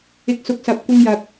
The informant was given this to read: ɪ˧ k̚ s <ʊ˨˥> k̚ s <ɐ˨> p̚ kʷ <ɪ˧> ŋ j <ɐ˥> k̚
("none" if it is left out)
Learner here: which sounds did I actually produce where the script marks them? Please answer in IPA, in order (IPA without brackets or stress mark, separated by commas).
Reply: ʊ˨˥, ɐ˨, ɪ˧, ɐ˨